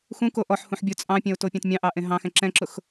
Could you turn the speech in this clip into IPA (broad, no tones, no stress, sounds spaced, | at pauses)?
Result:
x ũ k o ʔ ɔ ħ h ũ ħ bʲ ʊ t͡sʼ ɑ̃ pʲ ɛ̃ ʊ̯ t o pʲ ɑ̃ t mʲ ɑ̃ ʔ ɑ ʔ ẽ ɦ ɑ̃ x ɛ̃ ǁ ɛ̃ ǁ ʊ x